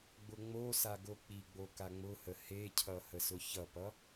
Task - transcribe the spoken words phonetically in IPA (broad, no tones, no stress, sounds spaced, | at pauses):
ɡ͡b ʊ ŋ͡m o s a ɡ o k͡p i ɡ͡b o k a ŋ͡m ʊ h ə h e cʰ ʌ h ə s ʊ ç ʌ p ʌ